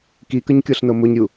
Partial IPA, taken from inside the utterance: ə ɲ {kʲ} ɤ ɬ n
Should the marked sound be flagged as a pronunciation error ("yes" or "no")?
no